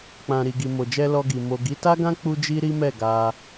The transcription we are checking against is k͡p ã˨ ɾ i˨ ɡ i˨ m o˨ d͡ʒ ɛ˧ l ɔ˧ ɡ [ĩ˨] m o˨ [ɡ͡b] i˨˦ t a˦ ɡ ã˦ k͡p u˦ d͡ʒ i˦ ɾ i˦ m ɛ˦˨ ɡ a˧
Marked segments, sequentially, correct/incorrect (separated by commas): incorrect, incorrect